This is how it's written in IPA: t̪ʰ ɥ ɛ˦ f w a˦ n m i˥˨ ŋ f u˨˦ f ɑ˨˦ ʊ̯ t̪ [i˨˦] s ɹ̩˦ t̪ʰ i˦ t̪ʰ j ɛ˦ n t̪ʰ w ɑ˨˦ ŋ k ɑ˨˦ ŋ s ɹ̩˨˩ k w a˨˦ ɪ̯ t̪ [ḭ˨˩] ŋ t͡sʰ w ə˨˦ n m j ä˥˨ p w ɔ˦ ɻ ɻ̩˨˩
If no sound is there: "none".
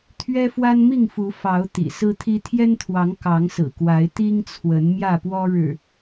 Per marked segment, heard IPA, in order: ḭ˨˩, i˦

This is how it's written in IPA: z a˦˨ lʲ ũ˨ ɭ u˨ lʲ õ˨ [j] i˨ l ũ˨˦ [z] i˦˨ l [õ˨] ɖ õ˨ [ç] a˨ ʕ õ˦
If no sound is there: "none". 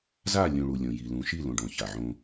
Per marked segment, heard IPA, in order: j, ʃ, õ˨, ç

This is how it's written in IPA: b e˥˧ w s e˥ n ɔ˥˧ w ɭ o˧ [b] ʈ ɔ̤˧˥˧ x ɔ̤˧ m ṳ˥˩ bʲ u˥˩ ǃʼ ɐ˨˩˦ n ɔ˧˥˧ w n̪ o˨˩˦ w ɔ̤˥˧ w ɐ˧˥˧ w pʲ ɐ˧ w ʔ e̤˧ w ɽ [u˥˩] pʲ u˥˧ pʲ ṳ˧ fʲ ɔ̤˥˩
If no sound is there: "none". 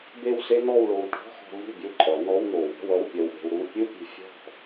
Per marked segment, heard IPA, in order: w, u˥˧

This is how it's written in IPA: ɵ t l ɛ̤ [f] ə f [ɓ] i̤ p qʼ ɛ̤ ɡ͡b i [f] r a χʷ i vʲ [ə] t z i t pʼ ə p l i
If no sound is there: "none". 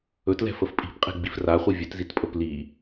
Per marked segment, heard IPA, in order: f, pʼ, f, ɵ

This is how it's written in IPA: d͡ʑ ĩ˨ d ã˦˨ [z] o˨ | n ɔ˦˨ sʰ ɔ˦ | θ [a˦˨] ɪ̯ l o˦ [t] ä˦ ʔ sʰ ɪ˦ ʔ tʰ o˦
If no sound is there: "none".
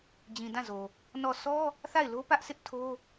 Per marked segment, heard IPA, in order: z, a˦˨, p

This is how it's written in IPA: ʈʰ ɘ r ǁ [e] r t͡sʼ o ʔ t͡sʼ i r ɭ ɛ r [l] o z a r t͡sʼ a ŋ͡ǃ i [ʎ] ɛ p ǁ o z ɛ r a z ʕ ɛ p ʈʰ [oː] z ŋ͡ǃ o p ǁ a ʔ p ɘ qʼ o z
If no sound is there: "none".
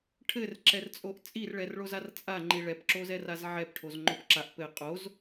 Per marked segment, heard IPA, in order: ɛ, ɭ, ɭ, o

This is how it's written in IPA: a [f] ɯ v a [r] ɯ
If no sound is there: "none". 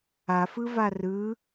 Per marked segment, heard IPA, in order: f, r

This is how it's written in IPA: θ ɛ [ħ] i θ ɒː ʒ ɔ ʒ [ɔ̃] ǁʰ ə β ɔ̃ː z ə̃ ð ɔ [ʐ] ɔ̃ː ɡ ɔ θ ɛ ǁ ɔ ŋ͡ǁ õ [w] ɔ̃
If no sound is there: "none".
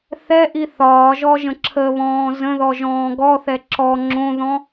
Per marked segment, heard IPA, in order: ʔ, ə̃, ʒ, ð

